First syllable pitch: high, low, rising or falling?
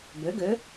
rising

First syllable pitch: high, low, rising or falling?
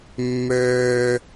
high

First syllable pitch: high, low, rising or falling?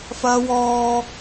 high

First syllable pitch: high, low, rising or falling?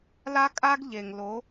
high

